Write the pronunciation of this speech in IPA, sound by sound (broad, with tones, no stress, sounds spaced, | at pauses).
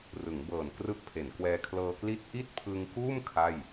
r ɯ˩˦ ŋ b ɤː˨˩ n k r ɯ˦˥ k̚ pʰ e˩˦ n k w ɛː˧ kʰ l ɤː˧ k l i˥˩ t̚ ʔ i˥˩ t̚ pʰ ɯ˧ ŋ k uː˥˩ m kʰ a˥˩ j